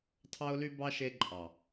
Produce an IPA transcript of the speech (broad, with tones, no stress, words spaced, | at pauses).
tʰɑ˧ʊ̯ly˧bɑ˧ ʃe˧ǃʼɑ˨